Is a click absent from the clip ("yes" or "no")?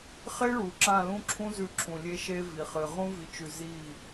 no